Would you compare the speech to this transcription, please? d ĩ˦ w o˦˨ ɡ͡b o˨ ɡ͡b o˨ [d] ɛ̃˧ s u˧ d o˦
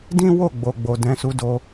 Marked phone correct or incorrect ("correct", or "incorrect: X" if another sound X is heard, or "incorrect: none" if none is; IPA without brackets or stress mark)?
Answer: correct